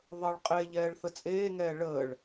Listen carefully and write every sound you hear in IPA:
ðˤ əː ɭ qʼ e ʎ ɛː ɭ θ ə t͡sʼ eː ŋ ɛː ɭ əː ɭ

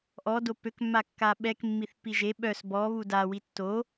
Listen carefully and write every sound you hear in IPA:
ʔ ɔ d o p ø k mː a kː a ɓ ɛ k mː i θ p i ʒ e ɓ œ s b ɔ β u d a w i tː o

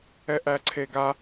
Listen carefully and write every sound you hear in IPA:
ɛ ʔ æ ǀʰ e ɡ a

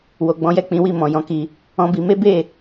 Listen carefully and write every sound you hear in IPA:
w o˨ ɡ͡b ɔ̃˨˦ j ɛ˦˨ k͡p ĩ˨˦ w i˦˨ m ɔ̃˨ j ɔ̃˨˦ k i˧ | ɔ̃˦ b i˧ m e˦ b e˦˨

